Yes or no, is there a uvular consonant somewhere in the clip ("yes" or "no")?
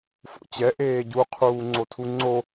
yes